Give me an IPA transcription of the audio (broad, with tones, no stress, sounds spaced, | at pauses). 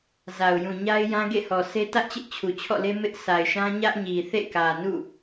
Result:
z a˨ ʊ̯ j ũ˨ ɲ a˦ ɪ̯ j ã˦ ɡ ḛ˦˨ h ɔ˨ s e˦ t ä˦ ʔ t͡ɕ ɪ˦ ʔ t͡ɕʰ u˨ t͡ɕʰ ɔ̰˦˨ l e˦ m ɪ˦ ʔ sʰ a˨ ɪ̯ ʃ ã˦ ɲ ä˦ ʔ ɲ i˨ θ ḛ˦˨ k ä˨ n ṵ˦˨